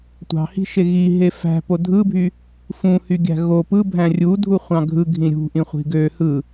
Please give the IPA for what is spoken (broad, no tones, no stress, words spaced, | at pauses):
tʷɑ̤hi̤ʃe ɣiɦe fæ̤po dʱɯbʱy | fũhyɡʲæ̤ ɣo pɯbʱæ̃ rʲudʱuχʷɑ̃ ɡʱɯɡʱĩ ɾʲṳʔĩχʷi̤ ɡø hɯ